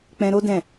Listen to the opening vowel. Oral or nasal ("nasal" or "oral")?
nasal